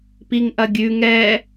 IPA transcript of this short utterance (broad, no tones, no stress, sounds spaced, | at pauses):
p i ŋ ʔ ɐ ɡʲ ʉ ŋ ɛ